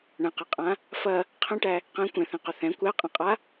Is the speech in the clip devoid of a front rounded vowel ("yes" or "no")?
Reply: no